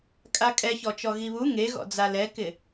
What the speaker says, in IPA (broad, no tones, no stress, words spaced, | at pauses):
kʼakʼɛçɔt͡ʃɔ ɣiβu ŋeɣɔ̰d͡za lɛkɪ